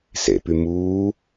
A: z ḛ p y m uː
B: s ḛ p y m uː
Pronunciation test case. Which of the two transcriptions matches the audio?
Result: B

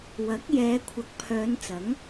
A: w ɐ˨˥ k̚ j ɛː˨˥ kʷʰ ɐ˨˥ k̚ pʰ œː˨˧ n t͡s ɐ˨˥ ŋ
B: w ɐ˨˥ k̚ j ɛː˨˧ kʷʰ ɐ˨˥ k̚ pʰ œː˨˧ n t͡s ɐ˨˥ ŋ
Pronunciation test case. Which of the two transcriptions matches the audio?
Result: B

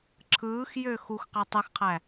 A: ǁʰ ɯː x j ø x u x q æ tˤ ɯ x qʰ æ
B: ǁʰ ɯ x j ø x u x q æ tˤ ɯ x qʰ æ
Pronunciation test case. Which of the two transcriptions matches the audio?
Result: A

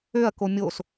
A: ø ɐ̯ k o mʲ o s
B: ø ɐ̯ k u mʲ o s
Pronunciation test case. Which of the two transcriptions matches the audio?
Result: A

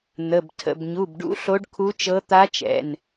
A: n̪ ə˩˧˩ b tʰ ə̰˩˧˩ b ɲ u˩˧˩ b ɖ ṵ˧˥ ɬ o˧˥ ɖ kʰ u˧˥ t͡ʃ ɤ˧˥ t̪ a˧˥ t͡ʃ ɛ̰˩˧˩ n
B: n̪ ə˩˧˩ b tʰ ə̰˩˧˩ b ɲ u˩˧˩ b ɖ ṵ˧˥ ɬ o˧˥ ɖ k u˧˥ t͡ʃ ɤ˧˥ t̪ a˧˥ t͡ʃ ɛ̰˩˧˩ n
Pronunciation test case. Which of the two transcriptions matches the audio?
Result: A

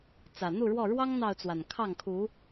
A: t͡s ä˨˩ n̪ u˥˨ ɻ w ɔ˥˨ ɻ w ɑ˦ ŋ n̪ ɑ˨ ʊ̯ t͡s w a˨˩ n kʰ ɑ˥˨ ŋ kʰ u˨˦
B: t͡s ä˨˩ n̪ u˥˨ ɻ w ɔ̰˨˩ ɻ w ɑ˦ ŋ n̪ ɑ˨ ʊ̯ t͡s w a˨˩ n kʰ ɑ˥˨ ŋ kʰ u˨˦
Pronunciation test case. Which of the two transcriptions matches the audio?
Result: A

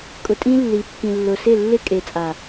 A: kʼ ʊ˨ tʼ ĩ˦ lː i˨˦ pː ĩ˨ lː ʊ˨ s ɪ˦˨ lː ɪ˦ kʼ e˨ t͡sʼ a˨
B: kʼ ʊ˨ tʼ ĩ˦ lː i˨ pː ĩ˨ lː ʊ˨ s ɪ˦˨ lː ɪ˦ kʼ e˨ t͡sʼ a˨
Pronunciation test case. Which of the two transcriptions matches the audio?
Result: A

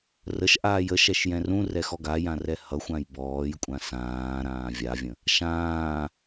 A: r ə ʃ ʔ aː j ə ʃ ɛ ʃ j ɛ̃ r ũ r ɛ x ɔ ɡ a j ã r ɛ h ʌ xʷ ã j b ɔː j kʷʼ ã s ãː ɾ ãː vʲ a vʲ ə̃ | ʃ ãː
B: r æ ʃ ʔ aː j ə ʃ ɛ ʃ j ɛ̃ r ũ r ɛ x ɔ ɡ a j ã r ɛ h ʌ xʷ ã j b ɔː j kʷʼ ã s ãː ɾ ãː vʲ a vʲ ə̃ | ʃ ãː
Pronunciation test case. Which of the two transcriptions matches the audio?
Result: A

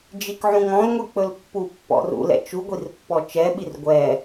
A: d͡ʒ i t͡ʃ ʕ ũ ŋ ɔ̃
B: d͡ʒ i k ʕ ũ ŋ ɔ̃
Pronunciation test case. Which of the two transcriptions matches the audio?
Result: B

